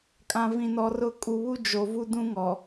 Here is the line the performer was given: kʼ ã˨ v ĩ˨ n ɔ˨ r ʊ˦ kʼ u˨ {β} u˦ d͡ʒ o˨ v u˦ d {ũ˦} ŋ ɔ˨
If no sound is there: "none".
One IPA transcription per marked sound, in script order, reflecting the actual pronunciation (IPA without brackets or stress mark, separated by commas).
β, ũ˦